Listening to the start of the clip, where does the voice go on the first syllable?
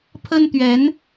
high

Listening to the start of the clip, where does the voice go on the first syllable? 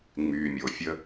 low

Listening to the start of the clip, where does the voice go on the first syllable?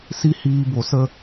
high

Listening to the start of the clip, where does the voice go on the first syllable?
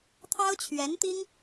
high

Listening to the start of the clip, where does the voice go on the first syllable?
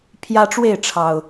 high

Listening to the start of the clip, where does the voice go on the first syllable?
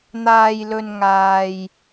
low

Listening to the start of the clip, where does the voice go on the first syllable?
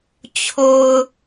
low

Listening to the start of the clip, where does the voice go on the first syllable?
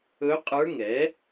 rising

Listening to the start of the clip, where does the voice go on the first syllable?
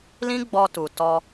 high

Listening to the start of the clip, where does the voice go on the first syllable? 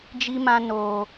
high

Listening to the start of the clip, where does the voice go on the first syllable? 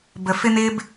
low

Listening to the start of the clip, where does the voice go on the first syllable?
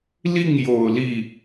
falling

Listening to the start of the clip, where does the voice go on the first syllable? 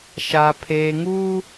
low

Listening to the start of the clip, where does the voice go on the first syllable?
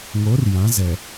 rising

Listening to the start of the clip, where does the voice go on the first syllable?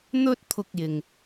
high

